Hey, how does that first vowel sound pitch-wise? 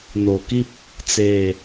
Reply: low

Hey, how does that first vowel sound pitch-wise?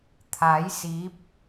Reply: rising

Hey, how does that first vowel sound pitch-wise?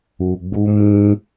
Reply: low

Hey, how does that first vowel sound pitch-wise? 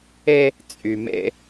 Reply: high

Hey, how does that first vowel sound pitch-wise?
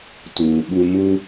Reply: low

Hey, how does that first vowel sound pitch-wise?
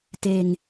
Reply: low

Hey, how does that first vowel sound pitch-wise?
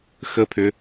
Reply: rising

